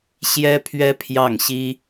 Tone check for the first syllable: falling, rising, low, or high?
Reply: high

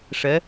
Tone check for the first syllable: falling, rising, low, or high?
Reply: rising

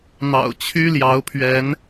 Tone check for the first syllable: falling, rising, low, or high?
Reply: low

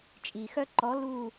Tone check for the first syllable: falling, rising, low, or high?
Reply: low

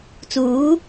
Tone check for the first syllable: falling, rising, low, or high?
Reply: rising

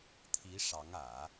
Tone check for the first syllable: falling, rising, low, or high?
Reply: rising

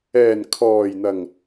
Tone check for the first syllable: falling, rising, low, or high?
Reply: low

